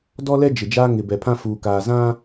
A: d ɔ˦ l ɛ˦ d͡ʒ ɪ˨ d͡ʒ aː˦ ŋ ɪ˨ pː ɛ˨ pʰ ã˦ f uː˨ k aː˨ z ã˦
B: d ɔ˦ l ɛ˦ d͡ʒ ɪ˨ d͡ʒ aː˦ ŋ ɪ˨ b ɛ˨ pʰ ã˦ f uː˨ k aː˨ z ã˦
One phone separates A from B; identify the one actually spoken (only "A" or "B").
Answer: B